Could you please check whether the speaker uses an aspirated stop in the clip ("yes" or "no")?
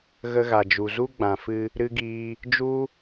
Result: no